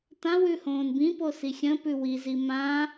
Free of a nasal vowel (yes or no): no